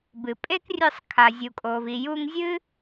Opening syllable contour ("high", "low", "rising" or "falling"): low